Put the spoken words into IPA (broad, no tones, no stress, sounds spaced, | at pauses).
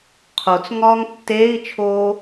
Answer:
qʰ o t͡s ŋ ɒː ŋ tː eː i̯ t͡ʃʰ oː